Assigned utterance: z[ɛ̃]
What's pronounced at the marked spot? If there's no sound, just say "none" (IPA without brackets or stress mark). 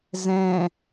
ɛ̃